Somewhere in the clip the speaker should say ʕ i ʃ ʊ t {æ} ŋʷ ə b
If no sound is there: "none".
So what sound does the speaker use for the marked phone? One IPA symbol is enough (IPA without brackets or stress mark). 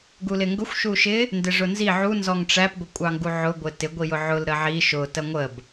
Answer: ɜ